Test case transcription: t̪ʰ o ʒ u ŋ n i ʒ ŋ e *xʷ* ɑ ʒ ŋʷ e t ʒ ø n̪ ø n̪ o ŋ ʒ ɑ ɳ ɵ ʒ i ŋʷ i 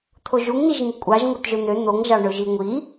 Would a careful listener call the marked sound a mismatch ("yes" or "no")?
yes